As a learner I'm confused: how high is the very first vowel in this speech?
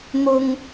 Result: high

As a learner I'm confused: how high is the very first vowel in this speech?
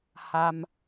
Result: low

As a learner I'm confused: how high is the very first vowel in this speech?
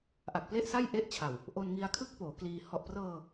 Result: low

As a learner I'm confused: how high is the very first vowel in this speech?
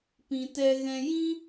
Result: high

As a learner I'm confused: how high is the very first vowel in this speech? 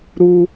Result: high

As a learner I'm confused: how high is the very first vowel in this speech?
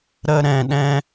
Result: mid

